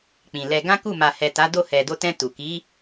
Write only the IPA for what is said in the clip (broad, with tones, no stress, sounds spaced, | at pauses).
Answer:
k͡p ĩ˨ l ɛ˧ ɡ ã˦ k u˦˨ m a˨ h ɛ˨ t a˨˦ d o˦˨ h ɛ˨ d o˧ t ɛ̃˧ t u˨ k i˨˦